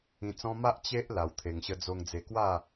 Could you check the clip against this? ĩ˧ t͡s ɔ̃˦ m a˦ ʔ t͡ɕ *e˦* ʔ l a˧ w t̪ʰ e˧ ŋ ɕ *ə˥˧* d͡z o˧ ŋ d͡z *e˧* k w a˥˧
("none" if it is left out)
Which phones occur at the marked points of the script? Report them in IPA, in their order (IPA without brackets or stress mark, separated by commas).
e˦, ə˧, e˧